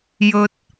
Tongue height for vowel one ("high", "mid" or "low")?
mid